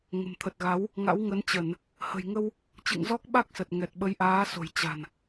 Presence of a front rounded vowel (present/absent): absent